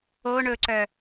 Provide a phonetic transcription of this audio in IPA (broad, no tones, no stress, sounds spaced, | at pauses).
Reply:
o ɳ ɵ ǀ œ